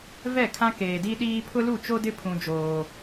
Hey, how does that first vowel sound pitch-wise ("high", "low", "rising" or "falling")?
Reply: falling